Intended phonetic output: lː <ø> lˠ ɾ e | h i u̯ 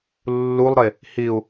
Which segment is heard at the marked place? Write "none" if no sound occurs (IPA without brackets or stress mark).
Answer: u